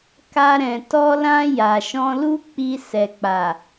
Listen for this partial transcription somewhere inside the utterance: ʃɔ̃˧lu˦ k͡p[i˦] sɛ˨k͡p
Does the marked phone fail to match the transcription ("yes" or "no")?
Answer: yes